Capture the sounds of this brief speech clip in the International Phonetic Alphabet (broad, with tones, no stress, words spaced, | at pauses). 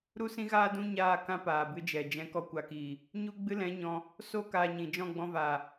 ɾu˦sĩ˦ɣaː˦dũ˦ ɲaː˦˨kã˦ paː˨bɨ˧d͡ʒɛ˨ d͡ʒɛ̃˧ kɔ˦kʷa˧kiː˨ | ɲu˦ɡ͡bɨ˦lɛ̃˨˦ ɲɔ̃˧ | so˦ kaː˧ɲĩ˨ d͡ʒɔ̃˦˨ɡ͡bɔ̃˧vaː˨